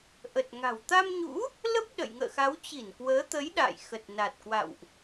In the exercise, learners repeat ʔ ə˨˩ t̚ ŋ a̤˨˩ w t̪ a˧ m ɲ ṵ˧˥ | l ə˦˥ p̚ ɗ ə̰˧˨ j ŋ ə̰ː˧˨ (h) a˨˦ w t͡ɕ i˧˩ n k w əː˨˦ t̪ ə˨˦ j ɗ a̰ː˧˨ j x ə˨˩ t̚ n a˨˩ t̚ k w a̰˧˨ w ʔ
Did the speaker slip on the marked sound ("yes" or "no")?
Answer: yes